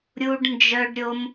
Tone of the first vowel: high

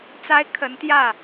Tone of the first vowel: high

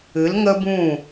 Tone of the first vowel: rising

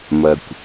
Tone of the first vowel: low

